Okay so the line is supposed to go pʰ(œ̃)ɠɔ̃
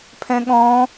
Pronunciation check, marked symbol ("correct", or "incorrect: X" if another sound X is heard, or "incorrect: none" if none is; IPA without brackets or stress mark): incorrect: ɛ̃